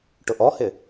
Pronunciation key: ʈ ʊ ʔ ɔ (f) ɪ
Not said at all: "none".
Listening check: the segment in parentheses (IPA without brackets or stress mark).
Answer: h